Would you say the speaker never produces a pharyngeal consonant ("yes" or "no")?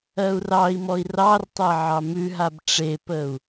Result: no